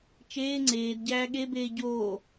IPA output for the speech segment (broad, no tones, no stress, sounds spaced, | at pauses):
t͡ʃ eː ŋ͡ǀ eː d ɟ æː ɠ e b eː ɟ oː